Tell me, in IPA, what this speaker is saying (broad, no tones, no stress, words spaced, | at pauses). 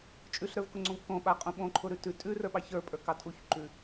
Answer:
t͡ʃʼʉɬɾə˞vkʊŋ͡ǀõv kõɓaqʼũ ɓõǃʰʊɾʉ tʉ tʼʉrə˞ɓɑ çə˞pʼə˞kɑ tʼuçǃʉ